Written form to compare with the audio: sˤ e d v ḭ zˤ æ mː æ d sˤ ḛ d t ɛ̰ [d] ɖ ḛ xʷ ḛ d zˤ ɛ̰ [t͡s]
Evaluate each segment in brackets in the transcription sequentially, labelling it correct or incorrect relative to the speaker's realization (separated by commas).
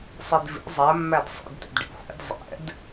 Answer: correct, incorrect